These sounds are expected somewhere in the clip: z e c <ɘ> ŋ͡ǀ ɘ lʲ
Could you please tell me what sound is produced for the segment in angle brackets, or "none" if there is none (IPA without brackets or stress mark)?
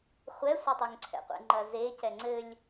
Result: ɛ